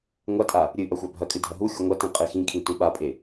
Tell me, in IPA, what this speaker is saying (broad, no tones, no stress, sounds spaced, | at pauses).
ŋʷ a tʼ a | ɾʲ ɨ ʔ ɐ xʷ a bʱ ɐ kʼ ɨ dʱ ɐ ɦ u xʲ u ŋʷ ɐ t ĩ qʼ e x ĩ kʰ ĩ t ũ ɓ a pʼ e